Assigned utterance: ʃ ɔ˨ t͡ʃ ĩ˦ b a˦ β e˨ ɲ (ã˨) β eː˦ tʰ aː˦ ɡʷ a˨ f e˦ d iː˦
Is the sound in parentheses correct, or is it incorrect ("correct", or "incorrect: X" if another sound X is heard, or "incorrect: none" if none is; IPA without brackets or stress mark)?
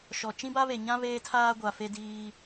incorrect: ã˦